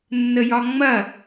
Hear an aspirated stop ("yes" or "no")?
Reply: no